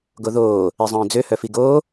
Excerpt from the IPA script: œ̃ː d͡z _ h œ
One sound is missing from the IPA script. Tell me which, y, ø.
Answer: ø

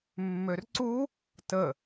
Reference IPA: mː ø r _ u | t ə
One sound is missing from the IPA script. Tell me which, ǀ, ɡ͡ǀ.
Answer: ǀ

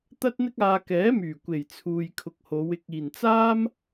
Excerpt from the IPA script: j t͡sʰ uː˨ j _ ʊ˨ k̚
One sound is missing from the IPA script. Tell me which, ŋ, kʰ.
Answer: kʰ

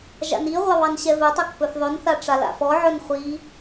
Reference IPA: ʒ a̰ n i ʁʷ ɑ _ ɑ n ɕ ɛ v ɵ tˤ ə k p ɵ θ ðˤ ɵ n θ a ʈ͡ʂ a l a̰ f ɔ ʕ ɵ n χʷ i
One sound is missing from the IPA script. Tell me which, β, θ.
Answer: β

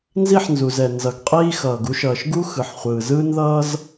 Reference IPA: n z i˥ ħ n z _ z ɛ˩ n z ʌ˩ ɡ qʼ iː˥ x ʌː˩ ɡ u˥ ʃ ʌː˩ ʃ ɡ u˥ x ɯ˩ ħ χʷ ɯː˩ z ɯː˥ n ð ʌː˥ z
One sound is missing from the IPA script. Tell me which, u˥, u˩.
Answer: u˩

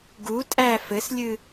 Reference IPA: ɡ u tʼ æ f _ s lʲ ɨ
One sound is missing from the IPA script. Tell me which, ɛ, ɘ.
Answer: ɘ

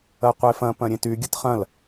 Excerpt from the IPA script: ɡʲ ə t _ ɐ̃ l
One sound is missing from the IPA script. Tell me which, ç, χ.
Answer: χ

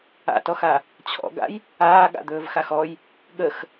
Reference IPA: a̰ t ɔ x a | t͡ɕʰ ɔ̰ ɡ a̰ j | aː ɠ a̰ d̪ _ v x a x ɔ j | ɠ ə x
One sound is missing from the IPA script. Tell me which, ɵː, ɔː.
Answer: ɵː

